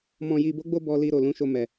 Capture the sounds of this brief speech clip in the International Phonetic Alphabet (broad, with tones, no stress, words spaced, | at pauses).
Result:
mɔ̃˨ji˨bo˨˦ɡ͡bo˧ bɔ˨li˨ ɾo˨lũ˨˦ʃo˧ mɛ˨